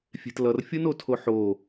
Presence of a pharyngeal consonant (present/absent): present